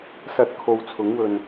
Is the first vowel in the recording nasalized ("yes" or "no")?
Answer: no